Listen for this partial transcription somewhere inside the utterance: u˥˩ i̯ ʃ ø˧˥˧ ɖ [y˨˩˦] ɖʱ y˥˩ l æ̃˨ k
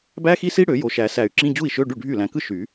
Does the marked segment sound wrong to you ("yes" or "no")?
yes